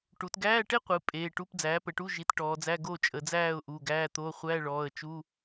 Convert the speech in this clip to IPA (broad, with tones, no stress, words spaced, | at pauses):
ʈu˩˧tɡæː˧˥˧ʈe˥qʷɨ˩˧ pʼeː˩˧˩ʈu˧˥˧p d͡zæː˩˥pə˩˧ʈu˧˥˧ ʒi˩˥tʈɔː˩˧d͡zæ˧˥˧ ɡo˥˨t͡ʃʼə˩˧d͡zæː˥˨ʊ̯ ʔu˩˧˩ɡæː˧˥˧t̪o˧˥˧ χʷæ˧˥˧ɭɔː˩˧˩ə̯t͡ʃu˧˥˧